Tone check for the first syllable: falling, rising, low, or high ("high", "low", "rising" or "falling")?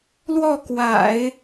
falling